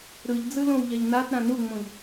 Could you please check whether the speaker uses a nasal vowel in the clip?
yes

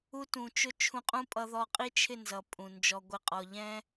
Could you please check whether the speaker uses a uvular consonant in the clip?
yes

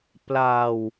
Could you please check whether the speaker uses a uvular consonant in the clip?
no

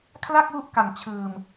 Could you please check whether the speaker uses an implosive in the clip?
no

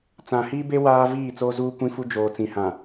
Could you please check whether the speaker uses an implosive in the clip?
no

